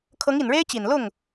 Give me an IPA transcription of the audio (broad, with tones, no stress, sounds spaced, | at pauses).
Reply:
kʰ ɤ˧˥ ŋ i˨˩ n ɻ e˥ ɪ̯ t͡ɕ i˨˩ n l ʊ˥˩ ŋ